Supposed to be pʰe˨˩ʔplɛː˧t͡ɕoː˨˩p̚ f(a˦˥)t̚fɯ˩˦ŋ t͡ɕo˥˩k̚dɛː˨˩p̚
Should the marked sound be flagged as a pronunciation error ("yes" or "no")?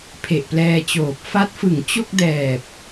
no